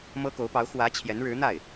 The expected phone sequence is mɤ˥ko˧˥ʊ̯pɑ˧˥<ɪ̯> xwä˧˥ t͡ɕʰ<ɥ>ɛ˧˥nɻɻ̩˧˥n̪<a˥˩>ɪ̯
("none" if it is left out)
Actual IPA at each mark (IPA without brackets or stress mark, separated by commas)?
ʊ̯, j, a˥˩